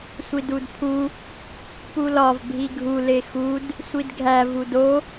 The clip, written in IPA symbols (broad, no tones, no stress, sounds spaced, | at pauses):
sʷ i d u d pʰ u | p u l ɒ v bʱ i ɡʱ u l e x u d | sʷ i d ɡʱ æ v u d o